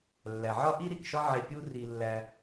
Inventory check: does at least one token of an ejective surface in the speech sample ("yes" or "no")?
no